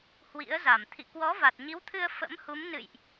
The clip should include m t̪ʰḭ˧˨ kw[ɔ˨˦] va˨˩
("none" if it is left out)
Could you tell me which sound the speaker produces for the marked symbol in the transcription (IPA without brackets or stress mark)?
ɔ˨˦